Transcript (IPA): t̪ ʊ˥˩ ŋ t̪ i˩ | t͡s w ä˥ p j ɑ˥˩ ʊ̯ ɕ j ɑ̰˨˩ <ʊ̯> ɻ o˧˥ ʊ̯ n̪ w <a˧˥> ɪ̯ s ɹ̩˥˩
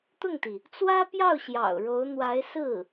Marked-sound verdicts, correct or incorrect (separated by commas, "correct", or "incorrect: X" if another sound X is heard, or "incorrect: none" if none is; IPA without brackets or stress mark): correct, correct